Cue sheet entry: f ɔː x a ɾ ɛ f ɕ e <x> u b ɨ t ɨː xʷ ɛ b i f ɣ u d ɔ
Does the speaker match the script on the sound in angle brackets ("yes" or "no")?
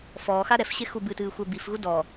yes